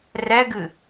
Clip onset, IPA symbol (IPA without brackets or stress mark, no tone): r